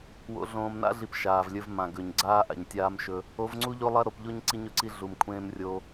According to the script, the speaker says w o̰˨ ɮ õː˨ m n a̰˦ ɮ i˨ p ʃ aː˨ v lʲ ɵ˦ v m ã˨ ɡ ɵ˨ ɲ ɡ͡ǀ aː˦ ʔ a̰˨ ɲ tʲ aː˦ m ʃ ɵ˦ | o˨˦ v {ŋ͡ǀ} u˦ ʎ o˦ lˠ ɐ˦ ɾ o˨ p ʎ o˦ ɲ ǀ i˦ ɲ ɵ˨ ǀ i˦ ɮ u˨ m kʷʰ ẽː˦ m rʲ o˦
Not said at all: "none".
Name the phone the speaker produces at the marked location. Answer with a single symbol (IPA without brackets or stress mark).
ŋ͡ǀ